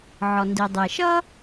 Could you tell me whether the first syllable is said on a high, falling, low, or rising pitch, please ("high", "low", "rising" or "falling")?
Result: low